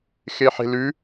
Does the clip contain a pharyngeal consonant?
yes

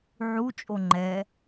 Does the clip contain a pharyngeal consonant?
yes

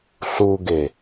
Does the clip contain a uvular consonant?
no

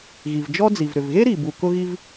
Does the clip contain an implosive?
no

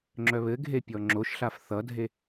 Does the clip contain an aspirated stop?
no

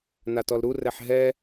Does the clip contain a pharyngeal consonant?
yes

